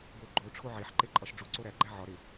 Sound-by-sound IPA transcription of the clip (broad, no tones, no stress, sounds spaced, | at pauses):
b o ɡ͡ǃ o ʈ͡ʂʰ o ʕ e ħ ǃ e ǃʼ ɒ ʃ ɖ͡ʐ u ǀ o ɾ æ ɡ͡ǃ æ ʕ ɒ ɾ e